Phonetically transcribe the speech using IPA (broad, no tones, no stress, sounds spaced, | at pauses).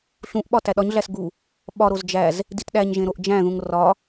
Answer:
ɬ ũ ʔ ɓ ɒ t æ ɗ ɒ ɲ ɮ æ s ɡ u | ɓ ɒ ɾ o z d͡ʒ æ z | d i t ɗ æ ɲ ʒ ẽ ɾ o ʔ d͡ʒ æ̃ ð ũ ŋ r ɒ